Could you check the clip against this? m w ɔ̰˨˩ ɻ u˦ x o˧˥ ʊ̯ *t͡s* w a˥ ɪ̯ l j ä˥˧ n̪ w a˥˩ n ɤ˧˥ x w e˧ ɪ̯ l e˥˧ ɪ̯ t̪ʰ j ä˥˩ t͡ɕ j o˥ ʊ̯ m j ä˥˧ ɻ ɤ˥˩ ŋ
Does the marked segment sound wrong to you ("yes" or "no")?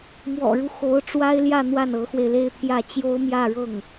yes